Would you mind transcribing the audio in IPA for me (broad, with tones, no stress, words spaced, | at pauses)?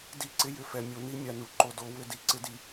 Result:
di˦˨ǀɪ˦ jʏ˨fɛ˨mʲo˨˦ni˦ mʲa˨nu˨ ǃo˨do˨˦wʏ˦˨di˦ ǀɪ˦di˨